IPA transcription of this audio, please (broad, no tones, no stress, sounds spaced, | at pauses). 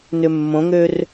n ʏ mː õ ŋ ø r